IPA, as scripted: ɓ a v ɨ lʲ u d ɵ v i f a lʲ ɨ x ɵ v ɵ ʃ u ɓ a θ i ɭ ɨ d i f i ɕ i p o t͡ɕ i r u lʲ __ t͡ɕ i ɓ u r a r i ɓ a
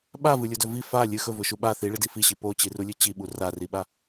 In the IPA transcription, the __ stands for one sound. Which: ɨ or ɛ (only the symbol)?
ɨ